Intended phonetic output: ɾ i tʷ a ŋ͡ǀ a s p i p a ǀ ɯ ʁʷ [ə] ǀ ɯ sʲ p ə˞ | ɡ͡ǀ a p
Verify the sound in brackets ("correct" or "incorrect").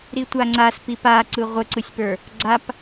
correct